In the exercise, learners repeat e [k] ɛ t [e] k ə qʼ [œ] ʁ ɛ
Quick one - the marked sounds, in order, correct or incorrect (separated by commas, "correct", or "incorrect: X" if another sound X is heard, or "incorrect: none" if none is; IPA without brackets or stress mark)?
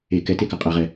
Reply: correct, correct, incorrect: ɛ